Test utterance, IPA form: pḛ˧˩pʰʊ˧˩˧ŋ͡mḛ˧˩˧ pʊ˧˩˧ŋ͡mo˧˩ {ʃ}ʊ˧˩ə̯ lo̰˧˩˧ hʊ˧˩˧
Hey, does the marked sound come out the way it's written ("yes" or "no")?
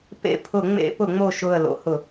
yes